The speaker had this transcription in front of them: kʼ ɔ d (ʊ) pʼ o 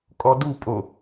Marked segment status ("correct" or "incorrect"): incorrect